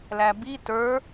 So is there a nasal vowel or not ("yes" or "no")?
no